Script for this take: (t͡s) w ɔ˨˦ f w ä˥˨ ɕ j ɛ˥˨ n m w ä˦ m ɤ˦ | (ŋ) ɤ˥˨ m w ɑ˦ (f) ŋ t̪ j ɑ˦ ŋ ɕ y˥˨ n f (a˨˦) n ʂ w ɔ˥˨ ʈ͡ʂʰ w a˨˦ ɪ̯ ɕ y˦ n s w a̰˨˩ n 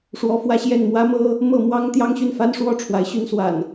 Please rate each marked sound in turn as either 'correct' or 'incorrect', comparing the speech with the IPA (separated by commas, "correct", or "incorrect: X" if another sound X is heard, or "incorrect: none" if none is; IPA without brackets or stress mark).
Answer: incorrect: ʂ, incorrect: m, incorrect: none, incorrect: a˦